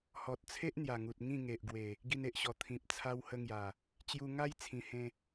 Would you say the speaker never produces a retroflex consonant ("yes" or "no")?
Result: yes